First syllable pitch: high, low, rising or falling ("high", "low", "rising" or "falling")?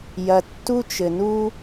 low